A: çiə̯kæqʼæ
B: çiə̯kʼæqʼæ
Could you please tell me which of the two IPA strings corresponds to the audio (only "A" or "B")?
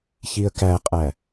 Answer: A